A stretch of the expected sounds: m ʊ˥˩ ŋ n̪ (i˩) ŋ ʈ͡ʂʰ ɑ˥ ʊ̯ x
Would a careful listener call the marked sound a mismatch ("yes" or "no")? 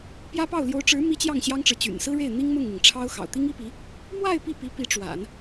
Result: no